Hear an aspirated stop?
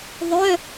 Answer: no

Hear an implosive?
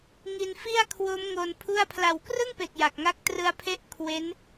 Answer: no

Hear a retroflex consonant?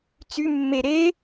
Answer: no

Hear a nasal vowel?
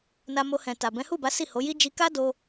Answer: yes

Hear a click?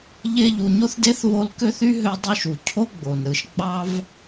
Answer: no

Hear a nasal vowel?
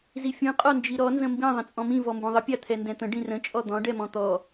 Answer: yes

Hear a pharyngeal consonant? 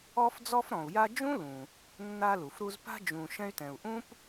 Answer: no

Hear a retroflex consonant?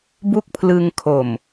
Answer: no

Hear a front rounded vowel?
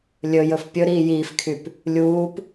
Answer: yes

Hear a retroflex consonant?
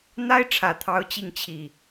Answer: yes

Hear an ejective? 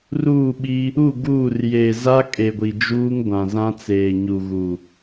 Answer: yes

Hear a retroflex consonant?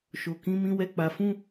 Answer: no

